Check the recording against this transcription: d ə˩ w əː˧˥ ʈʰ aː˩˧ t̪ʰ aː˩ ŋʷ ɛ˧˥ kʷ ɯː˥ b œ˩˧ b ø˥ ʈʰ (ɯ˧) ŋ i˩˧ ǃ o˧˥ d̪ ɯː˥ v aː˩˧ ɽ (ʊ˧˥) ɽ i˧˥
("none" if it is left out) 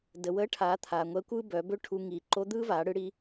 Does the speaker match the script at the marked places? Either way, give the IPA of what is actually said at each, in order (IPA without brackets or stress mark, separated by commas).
u˧, ɯ˧˥